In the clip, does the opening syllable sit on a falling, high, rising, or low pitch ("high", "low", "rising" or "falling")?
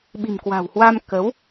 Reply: low